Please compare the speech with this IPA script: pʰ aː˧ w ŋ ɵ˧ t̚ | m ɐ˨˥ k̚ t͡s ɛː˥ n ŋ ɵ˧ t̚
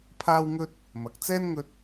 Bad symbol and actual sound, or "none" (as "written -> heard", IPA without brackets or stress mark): none